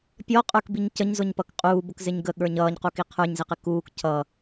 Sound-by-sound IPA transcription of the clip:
pʲ ɔ qʼ ə˞ k b i ɲ c ə ɲ z ʊ ɲ p ʌ k qʼ uː b ʊ k z ɪ ɲ ɡ ə ɠ ə˞ ɲ ʌː ɲ q u k i qʰ ə˞ ɲ z i q ɪ k uː k cʰ ʌ

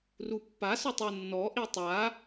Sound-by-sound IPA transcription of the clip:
r u pː a s ʊ tˤ u nː ɔ ʔ i tˤ a

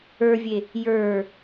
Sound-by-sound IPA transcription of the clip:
ə˞ vʲ e | j ə˞

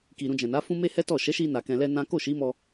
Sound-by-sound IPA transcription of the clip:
k i˨ ɾ ũ˧ d͡ʒ ɛ̃˨ n a˨˦ f ũ˦ m e˦ h ɛ˦ t ɔ˦˨ ʃ ɛ˨˦ ʃ i˧ n a˨ k ɛ̃˧ l ɛ˦ n ã˦ k o˦˨ ʃ i˨˦ m ɔ˧

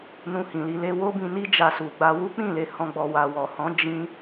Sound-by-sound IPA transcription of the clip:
n ũ˧ h ĩ˨ l i˧ l e˧ w o˦ b ĩ˧ n i˦ d͡ʒ a˧ s u˨ ɡ͡b a˧ w u˦ k͡p ĩ˦˨ l e˨˦ h ɔ̃˦ ɡ͡b ɔ˧ w a˨ w ɔ˨ h ɔ̃˨˦ d͡ʒ ĩ˦

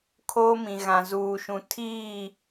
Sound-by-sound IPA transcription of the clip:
kʰ oː˦ m ĩ˨ ɣ ã˨ z uː˨ ʃ ũ˨ tʰ iː˦˨

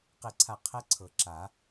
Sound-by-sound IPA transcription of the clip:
q e˥˨ ǀʰ a˥˨ qʰ ɛ˦˥ ǀʰ ɤ˨˩˦ ǁ a˨˩˦

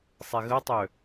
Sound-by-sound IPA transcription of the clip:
sˤ e ɣ ə tˤ ø

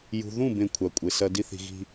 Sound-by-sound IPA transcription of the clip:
j ṳ˨ ð ũ˦˨ b ẽ˦˨ kʷʰ a˨ kʷʼ e˨ s ɐ˦ d i˦ θ i̤˨ ɣ i̤˦

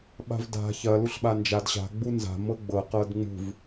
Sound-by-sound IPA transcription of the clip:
ɓ a̤ v d a̤ ç ɐ l u ɬ ɓ a n d͡ʒ a d ɕ a̤ ɡ͡b u n z a̤ m ɤ ɡ͡b ɤ q ɤ d ŋ͡m ṳ v

